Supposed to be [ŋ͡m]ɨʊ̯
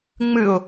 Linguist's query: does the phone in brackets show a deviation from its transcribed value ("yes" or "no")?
no